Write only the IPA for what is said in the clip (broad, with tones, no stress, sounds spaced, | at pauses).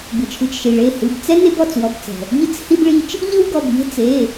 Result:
b ɯ˩ t͡ʃʰ ɯ˩˧˩ t͡ʃ ʃ i˩ ɭ e˩˧˩ h ɯ˩˧˩ b t͡s ɛ˦ n e˦ b ɔ˩˧˩ t͡s w ɔ˩˧˩ b t͡s ɛ̤˩ | ʎ ɯ˦ t͡s h i˦ b ɭ i˦ t͡ʃ | ʎ ɯ˦ w ɡ ɔ˩˧˩ b ʎ e̤˦ t͡s e˩˧˩